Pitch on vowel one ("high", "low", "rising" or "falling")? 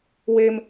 high